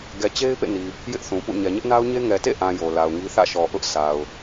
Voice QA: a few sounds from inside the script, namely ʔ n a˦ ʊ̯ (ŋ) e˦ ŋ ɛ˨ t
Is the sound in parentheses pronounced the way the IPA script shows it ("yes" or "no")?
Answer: no